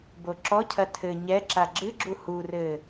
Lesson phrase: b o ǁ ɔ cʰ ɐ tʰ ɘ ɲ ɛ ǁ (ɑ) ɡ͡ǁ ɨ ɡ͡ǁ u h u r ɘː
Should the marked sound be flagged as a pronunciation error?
yes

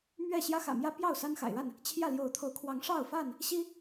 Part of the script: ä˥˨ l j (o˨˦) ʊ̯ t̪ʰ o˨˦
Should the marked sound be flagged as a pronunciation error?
no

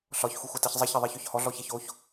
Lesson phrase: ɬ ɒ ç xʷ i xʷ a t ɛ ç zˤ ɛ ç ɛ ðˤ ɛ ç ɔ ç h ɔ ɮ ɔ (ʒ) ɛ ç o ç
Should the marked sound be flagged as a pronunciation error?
yes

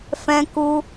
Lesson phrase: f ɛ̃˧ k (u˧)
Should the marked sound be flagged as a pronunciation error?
no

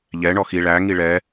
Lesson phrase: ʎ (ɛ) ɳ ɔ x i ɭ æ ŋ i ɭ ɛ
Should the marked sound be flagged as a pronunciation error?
no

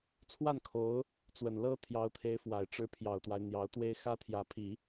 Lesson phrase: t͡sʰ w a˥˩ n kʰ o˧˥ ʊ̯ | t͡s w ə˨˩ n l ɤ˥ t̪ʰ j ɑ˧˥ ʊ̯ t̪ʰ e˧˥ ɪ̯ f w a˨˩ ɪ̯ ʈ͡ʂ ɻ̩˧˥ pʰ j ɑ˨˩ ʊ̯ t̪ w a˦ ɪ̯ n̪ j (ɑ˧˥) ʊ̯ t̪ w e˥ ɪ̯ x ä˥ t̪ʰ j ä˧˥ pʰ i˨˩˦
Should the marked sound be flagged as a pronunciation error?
no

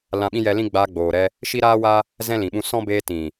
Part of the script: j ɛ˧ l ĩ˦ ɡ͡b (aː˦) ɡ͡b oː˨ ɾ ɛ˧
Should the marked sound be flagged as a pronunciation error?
yes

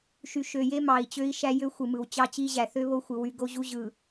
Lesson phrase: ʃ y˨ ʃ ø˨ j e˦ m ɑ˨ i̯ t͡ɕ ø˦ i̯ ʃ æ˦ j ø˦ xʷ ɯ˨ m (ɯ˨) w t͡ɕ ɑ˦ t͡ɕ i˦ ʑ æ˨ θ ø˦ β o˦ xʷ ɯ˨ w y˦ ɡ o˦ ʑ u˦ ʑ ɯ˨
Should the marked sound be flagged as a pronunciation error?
no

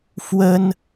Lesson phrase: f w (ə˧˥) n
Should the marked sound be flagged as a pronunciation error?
yes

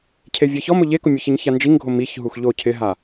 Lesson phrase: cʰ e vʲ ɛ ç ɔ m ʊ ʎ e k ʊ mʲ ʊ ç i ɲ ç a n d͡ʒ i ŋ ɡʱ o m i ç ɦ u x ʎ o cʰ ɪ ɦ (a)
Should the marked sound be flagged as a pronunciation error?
no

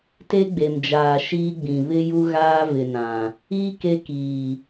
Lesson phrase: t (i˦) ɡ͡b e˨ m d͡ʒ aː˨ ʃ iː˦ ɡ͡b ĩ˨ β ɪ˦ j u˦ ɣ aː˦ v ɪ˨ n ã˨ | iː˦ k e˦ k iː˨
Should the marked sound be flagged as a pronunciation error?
yes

